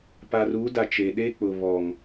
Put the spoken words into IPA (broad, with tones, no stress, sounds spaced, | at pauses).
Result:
p a˨ r u˨˦ d a˨ t͡ʃ e˨ ɗ e˦ k͡p ʊ˨ β ɔ˨ ŋ